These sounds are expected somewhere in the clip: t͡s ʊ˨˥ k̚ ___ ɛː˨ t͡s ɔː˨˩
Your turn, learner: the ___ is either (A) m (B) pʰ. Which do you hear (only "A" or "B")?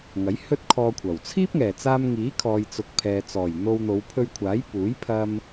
B